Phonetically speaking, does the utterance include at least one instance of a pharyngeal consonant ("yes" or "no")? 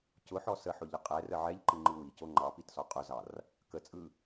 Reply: yes